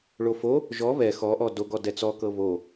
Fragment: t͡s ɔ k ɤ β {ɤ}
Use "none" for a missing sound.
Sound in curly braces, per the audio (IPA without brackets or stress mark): o